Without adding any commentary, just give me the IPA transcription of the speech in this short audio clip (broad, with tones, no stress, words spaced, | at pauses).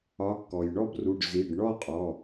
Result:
ɒ˨˥kːɔ˩jɳɔ˥˧bru˩˧˩ɖ zi˩˧˩ɖɳɔ˥˧qʼɔ˩˧˩